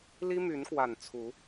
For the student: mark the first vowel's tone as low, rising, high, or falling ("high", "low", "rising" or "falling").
high